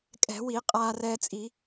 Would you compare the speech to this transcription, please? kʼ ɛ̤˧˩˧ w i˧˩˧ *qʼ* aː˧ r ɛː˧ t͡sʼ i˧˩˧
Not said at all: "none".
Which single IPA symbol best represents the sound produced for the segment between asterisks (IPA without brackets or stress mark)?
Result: qʼ